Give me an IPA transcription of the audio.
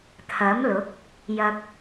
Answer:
t̪ʰ ɐ˨˥ m l ʊ˨˥ k̚ | j ɐ˨ k̚

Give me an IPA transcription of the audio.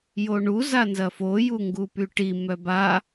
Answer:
j o ɳ u z a n z ɐ f o j u ŋ ɡ u p y ʈ i m œ b a

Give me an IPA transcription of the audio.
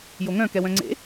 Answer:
j o ŋ œ̃ k ɛ w œ̃ ŋ͡ǀ ḛ

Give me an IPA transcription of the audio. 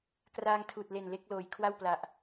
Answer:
k r aː˧ ŋ tʰ uː˨˩ t̚ l e˨˩ n l e˦˥ k̚ l oː˩˦ j kʰ w a˥˩ w p l a˨˩ ʔ

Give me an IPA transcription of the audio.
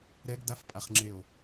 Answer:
ɾ ɛ ɡ d a f pʼ a χ ŋ͡ǁ e o̯

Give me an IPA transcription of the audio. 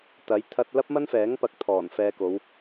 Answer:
t̪ ɐ˨˥ j t̪ʰ ɐ˧ t̚ l ɐ˥ p̚ m ɐ˥ n f ɛː˨˥ ŋ p ɐ˧ k̚ t̪ʰ ɔː˨˩ n f ɛː˧ k o˨˧ w

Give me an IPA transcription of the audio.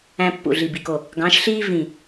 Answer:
æ̃˦ pː ṵ˧˩ ɮ i˧˩ b i˧˩ k o˧˩ | ɡ ɑ̃˨˦ ʃ ɬ iː˦ v ĩ˧˩

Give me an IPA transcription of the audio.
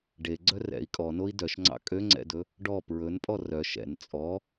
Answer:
ɖ e ɡ͡ǀ œ r ɛ̰ i̯ kʼ ɔ n o i̯ d œ ʃ ŋ͡ǀ ɑ̰ kʼ ø ŋ͡ǀ ɛ̰ d ɵ | ɖ ɔ p ɹ ɵ n pʼ ɔ r œ ʃ ɛ̰ n t͡sʼ ɔ

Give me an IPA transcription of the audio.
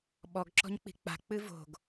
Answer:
ɓ ɔ ɡ ǁ ɔ̤ ɲ k͡p i̤ k͡p a̤ k͡p ɨ v o̤ ɡ

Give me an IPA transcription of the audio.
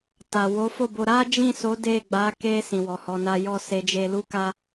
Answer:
t a˨ w o˨˦ f o˦˨ b o˧ ɾ a˦ d͡ʒ ĩ˦˨ s o˨˦ d e˦˨ ɡ͡b a˨˦ k e˧ s ĩ˨ w ɔ˨ h ɔ˧ n a˦ j ɔ˦˨ s e˨˦ d͡ʒ e˧ l u˦ k a˦

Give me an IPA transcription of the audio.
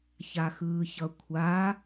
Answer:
ç a x ɯː ç ʌ kʷʰ a

